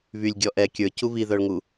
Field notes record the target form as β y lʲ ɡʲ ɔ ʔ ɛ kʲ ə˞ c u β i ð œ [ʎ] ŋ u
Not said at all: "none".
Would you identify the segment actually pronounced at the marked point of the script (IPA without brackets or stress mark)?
ɭ